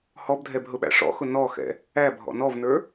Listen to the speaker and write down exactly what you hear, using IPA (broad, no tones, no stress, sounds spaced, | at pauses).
h ɔ b dʱ ɛ b ɦ ʊ ɓ æ̰ ʂ ɔ̰ x ʊ n ɔ x ɛ̰ | æ bʱ ɔ̰ n ɔ v n ə˞